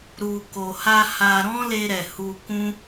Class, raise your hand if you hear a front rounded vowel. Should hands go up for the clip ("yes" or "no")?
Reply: no